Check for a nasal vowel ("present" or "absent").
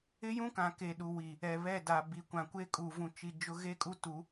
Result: present